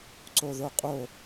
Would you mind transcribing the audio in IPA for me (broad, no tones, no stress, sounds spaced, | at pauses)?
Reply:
ǀ o ð o qʼ o